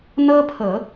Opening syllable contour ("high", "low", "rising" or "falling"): high